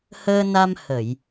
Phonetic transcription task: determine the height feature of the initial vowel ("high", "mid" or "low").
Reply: mid